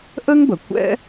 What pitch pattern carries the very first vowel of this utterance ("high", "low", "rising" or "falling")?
high